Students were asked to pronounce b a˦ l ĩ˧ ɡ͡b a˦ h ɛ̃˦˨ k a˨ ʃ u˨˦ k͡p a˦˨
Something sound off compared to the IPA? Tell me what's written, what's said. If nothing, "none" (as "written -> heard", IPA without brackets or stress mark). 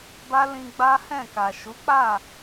none